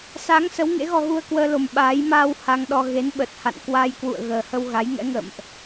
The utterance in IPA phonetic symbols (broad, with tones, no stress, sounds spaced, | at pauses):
s a˨˦ ŋ s ə˨˦ w ŋ ḛ˧˥ ɣ ɔ˧ ɣ u˧ ə̯ k w əː˧ l o˨˩ m ɓ aː˨˦ j m aː˧ w h a˧ ŋ ɗ ɔ˧ ɣ e˨˦ n ɓ ə˨˩ t̚ h a̰˧˨ n k w a˧ j k w ṵ˧˨ ə̯ ɣ əː˨˩ h ə˧ w ɣ a˨˦ j ŋ ɛ̰˧˥ ŋ ə̰ː˧˨ m ʔ